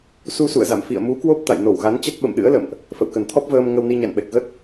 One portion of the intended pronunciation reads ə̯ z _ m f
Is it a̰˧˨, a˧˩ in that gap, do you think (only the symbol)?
a̰˧˨